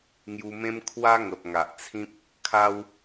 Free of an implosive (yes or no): yes